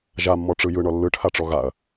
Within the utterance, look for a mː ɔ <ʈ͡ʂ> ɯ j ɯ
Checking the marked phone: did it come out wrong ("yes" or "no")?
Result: no